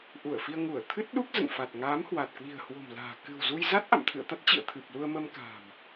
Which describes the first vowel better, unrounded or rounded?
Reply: rounded